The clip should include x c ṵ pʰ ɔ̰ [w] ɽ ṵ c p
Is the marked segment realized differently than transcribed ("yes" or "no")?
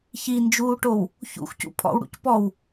no